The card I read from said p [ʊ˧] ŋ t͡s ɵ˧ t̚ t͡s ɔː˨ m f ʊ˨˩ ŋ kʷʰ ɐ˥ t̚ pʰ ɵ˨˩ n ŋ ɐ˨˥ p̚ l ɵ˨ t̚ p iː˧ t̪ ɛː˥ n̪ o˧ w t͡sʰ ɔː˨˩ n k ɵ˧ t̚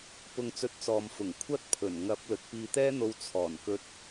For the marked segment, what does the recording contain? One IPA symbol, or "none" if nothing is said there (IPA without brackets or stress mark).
ʊ˧